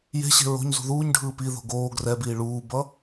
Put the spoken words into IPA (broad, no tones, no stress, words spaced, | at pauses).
je̤ɕe̤ ɹo̤ɲzṳ ðuːɲɖʱɯː piðo̤ ɡoː ɡrɛbiː ɭuːbʌ